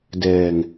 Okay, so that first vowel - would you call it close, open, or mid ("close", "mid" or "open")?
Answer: mid